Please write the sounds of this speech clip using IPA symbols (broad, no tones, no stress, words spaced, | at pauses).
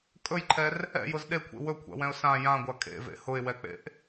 kʼɵjǃʰɛr | ɛ̰jʊz ɗekʷʰḛ wɵkʷʰa̰wɛ̃ʊ̯ sã jãɡʷa kʼḛvḛ hʊɪ̯wɛk͡pḛʔ